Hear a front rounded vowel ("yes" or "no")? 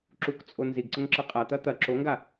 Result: no